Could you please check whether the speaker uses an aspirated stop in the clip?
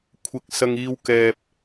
yes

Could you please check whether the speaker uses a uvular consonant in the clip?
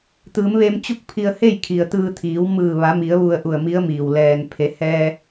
no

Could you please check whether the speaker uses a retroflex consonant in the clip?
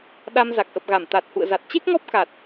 no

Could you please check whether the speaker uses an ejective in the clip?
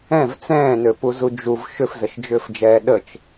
no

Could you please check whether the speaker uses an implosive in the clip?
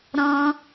no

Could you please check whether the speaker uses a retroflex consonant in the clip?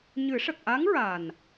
yes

